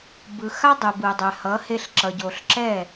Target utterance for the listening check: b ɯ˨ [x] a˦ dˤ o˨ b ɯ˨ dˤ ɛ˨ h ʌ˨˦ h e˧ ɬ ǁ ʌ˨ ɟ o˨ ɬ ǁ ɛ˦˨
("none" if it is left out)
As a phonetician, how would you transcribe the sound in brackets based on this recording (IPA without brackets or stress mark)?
x